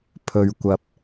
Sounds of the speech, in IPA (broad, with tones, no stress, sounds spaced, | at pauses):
pʰ ɵ˨ ɥ kʷ ɐ˨ p̚